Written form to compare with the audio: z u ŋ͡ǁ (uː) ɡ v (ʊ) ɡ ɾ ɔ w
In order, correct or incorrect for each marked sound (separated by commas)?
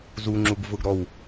incorrect, correct